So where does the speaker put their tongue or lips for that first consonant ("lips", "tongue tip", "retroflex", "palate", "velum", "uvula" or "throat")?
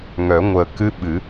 velum